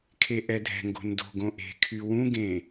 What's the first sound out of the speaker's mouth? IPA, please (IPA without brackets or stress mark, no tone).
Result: kʰ